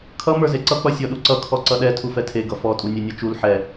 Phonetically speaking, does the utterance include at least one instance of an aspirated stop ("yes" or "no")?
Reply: yes